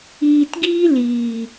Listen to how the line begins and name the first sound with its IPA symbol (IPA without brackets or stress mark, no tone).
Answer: iː